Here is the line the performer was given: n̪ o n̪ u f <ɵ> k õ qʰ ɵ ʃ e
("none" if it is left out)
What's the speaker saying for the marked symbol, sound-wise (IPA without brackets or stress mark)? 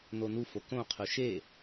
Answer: o